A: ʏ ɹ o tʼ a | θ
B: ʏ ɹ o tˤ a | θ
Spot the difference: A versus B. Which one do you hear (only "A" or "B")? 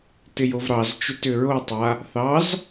B